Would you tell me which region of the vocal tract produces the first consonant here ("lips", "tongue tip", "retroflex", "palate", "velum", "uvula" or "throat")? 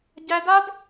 palate